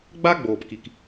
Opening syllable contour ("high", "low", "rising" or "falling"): high